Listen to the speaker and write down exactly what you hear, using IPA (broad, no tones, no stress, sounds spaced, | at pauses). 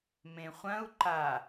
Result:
m ẽ χʷ ɐ̃ u̯ ǃ a